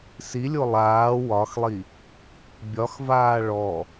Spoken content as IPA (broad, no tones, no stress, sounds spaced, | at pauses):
s i lʲ o lˠ aː w ɒ x lˠ i | bʲ ɒ x v aː ɭ ɔ